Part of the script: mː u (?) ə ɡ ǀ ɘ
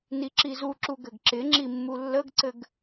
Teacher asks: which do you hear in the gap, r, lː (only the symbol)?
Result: lː